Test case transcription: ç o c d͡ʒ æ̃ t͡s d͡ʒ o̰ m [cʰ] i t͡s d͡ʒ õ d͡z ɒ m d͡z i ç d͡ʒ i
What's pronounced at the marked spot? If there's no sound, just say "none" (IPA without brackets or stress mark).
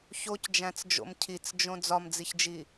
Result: cʰ